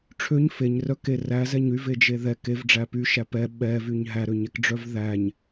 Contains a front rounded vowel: yes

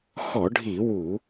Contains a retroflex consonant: yes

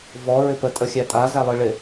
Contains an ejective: yes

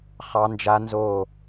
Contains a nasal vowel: no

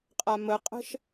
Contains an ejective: yes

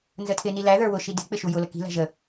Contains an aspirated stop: yes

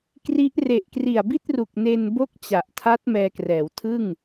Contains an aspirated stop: yes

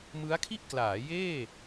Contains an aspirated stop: yes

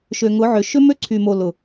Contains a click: yes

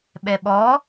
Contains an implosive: yes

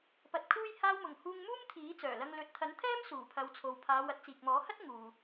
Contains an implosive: no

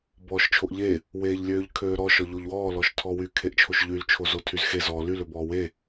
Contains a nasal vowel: no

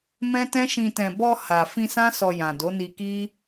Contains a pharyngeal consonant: no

